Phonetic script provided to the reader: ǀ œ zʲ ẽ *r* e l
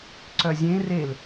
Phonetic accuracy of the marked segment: correct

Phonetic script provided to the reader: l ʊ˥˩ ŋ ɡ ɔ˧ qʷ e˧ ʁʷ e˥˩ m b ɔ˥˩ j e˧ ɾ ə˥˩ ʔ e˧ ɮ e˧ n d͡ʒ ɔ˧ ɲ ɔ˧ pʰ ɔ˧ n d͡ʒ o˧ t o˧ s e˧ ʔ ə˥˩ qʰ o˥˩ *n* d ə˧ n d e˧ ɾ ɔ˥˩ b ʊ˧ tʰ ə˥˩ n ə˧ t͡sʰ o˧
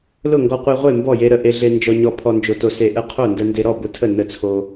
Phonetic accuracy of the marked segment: correct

